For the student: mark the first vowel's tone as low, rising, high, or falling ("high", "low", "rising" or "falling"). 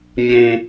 high